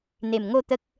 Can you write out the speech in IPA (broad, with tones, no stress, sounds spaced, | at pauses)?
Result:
n̪ e˨˩ m ŋ o˥˧ t̪ ə˦ k̚